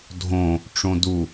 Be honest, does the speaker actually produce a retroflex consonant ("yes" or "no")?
yes